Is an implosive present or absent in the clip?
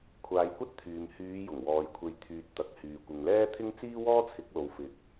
absent